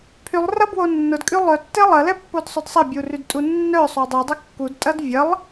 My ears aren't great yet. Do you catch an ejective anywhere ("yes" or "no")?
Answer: yes